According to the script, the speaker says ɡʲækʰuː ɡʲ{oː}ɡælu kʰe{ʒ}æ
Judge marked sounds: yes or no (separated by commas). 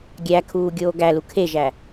yes, yes